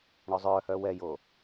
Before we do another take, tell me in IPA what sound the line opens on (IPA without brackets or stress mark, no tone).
ɳ